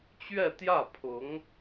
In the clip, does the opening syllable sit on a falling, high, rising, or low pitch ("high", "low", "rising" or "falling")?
falling